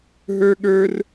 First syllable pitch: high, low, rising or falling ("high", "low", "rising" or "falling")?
high